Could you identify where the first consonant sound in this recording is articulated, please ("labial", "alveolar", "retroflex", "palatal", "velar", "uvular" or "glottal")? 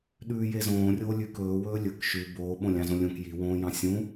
alveolar